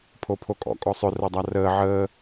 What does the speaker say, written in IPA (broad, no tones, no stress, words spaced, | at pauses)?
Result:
pʰopʰokʼɔ̰ kʼɔsˤʏ rodˤarəː ʕəː